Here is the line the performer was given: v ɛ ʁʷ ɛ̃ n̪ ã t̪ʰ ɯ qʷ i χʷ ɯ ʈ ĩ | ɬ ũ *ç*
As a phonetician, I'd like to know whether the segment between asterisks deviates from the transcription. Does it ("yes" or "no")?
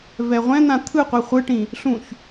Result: no